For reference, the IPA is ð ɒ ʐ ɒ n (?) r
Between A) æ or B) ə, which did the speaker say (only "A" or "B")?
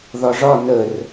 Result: B